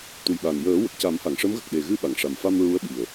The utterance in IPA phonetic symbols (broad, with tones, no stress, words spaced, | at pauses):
t̪u˨˩jɓa˨˩n jəː˨˩˦ wə˨˩k̚ ca˨˩˦mha˨˩˨ŋʂə˧˥mɣə˨˩k̚ ɗe˨˩ɣɨ˧ ɓa˨˩˨ŋʂa˨˩mfa˧m ɹu˧˥ə̯ ɓi˨˩ə̯